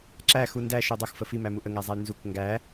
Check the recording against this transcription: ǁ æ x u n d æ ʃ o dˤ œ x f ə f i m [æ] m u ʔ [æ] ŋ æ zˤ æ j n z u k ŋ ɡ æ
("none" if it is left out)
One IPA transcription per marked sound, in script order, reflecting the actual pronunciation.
æ, ə

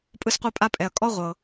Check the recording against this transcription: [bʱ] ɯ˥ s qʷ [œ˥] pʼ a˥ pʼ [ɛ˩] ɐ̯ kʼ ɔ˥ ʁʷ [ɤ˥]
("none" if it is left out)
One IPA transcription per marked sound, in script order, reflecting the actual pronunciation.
pʼ, ɛ˥, ɛ˩, ɤ˩

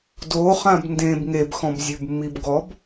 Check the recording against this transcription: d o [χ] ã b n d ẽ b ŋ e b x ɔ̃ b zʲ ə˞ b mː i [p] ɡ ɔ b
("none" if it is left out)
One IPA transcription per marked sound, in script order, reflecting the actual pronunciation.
χ, b

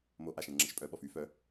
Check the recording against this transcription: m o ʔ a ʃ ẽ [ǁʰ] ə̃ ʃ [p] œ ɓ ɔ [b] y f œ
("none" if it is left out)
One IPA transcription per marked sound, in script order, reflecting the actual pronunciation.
ŋ͡ǁ, pʼ, f

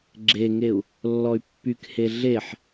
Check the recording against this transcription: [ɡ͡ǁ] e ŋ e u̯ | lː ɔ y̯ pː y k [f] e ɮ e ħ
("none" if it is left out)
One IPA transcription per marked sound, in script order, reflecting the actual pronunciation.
ɡ͡ǁ, h

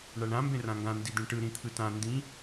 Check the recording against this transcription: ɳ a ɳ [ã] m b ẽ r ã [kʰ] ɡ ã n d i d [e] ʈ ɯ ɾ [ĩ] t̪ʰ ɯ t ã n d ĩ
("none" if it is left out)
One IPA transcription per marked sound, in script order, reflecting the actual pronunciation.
ã, ŋ, ẽ, ĩ

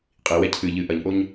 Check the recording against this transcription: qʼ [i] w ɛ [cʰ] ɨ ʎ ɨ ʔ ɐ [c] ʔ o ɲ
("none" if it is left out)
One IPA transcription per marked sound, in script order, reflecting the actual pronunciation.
i, cʰ, ɲ

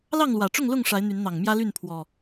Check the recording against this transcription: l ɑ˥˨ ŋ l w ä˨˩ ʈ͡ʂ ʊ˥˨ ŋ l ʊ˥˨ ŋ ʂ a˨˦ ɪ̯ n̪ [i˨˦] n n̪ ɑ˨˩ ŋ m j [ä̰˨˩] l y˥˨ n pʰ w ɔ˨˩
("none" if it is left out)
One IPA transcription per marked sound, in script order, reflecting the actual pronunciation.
y˨˦, ä˦

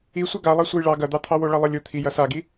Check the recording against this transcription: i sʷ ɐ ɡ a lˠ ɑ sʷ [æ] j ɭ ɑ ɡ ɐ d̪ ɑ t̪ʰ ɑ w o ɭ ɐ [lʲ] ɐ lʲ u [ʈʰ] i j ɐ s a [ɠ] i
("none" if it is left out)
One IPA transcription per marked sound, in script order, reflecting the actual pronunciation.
ɐ, lˠ, t̪ʰ, ɡ

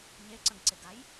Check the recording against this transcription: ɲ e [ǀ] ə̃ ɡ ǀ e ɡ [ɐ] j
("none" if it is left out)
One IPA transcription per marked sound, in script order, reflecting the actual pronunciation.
ǀ, a

